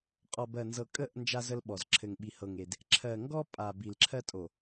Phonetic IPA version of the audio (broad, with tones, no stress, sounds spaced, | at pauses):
qʼ ɔ˨ b ɜ˨ n z ɤ˨ kʼ ə˦˨ ʔ n d͡ʒ a˦ z ə˦ l ɓ ɔ˨ z ǁʰ ɘ˨ ŋ ɓ i˨ h ɤ˨ ŋ e˨ d | ǁʰ ɜ˨ ŋ ɡ ɔ˦ pʼ a˨ b i˨ l ǁʰ ɜ˦ tʼ o˨